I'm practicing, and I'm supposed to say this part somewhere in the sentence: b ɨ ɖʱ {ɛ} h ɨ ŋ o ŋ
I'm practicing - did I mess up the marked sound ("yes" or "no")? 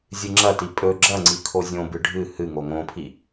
yes